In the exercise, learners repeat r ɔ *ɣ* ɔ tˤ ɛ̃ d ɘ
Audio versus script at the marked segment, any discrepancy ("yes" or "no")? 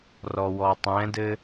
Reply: yes